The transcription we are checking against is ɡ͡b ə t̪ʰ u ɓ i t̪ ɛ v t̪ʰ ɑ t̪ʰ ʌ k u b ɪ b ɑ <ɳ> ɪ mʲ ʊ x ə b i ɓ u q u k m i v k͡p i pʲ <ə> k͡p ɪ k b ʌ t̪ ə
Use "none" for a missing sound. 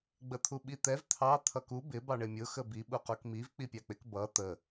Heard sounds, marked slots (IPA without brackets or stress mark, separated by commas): ɳ, ɑ